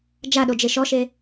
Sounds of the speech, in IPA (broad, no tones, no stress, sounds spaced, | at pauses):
d͡ʒ a ɗ o d͡ʒ e ʃ ɔ ʃ e